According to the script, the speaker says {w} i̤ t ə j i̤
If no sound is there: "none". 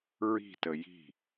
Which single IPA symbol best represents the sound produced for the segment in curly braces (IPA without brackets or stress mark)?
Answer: ɹ